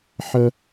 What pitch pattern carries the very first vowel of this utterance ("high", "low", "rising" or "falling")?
high